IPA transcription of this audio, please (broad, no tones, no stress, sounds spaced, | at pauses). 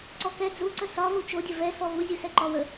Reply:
ǀ ɔ k ɛ d͡z u ǀ ə s ɒ v u t͡ʃ o dʲ ə v ɛ s ɔ v u zʲ u s ɛ ǃ ɔ w ə